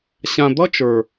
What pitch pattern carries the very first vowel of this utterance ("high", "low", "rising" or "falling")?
low